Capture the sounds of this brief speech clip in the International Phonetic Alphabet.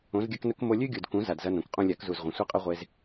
õ˨˦zɡʲɐ˦knɵ˦k mo˧lʲʉ˦ɡʲu˨d kũ˨˦ za˨dzɐ˧ nõ˨kqʼũ˦ lʲa˨˦kzu˨zʁʷɐ̃˨ sʷi˦qʼɵ˦ʁʷe˧z

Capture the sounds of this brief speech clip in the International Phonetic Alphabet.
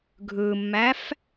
ɡʱɯmːæf

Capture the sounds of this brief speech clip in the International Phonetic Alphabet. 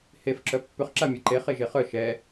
hef ǁœpːʏχ ǁamʲɛǃe χeʒeχœ ʃɛ

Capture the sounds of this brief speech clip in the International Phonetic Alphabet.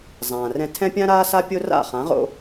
zˤãː˩rɛ̃˧ tʰɛ̃˥pʲã˥ɾaː˥sa˥ pʲo˥ra̰˥˩χã˩˥ ʁo̰˧

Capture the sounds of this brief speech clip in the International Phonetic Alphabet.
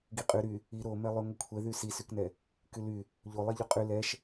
ɡiqʼy ɾy | i ɾomɛlˠy ŋʷikʷʰɛðy sisyknɛ | kyly | ʎolˠɛ ʎoqʼy lɛʃ

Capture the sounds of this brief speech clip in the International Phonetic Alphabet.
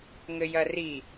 ŋɘjɐri

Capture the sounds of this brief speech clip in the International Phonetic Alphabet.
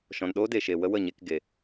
ʃɔ̃˨nɗoː˦de˨ʃe˨ wə˦wə˦˨ɲe˧kɡe˨

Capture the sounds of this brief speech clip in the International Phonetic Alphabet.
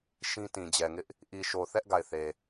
ʃĩ˦tĩ˨d͡ʑɛ˨ŋɪ˦ʔ | ʔi˨ʃo˨θɛ˦ʔ ɡa˦˨ɪ̯θe˨

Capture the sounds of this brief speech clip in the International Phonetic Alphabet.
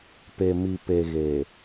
pe˨mi˨pe˨ ɣe˨

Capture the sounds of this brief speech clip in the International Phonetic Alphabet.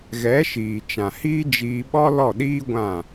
ɣɛ˨˦ʃiː˨ t͡ʃã˨hiː˦d͡ʒiː˧ ɓɔ˦lɔ˦˨ɗiː˦ ɡʷã˦˨

